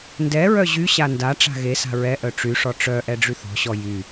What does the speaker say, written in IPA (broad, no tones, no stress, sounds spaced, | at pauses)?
n d ɛ ɹ œ ʑ y ɕ a n d a ʈ͡ʂ a̤ ɣ e s a̤ ɹ ɛ ʔ œ ʈ͡ʂ y ʂ ɔ ʈ͡ʂ œ ʔ ɛ ɖ͡ʐ y θ ɔ̤ ɕ ɔ j y